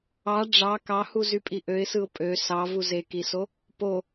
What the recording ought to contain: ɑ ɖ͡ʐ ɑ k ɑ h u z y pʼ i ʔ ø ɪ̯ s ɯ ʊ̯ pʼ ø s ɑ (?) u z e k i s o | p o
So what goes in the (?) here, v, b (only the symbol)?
v